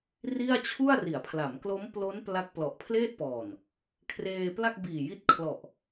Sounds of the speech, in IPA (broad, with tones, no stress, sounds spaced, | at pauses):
r i˥˩ a̯ t͡ɕʰ u˥˩ a̯ r i˩˦ a̯ pʰ l a˩˦ m k l o˦˥ m p l o˦˥ n p l a˦˥ k̚ p l ɔ˨˩ ʔ pʰ l eː˥˩ t̚ p ɔː˨˩ n | kʰ r eː˧ p l a˥˩ k̚ b iː˨˩ j i˦˥ t̚ kʰ l ɔ˨˩ ʔ